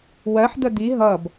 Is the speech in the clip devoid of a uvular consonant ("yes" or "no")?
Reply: yes